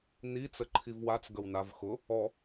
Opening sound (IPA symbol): n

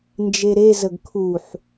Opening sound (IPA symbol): n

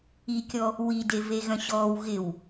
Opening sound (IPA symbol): i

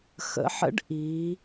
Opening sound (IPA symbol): x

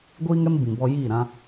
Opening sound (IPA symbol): ɡʷ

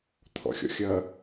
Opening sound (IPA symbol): t̪ʰ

